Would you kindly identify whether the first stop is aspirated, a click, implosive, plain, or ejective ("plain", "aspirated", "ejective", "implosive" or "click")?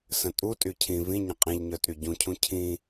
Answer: ejective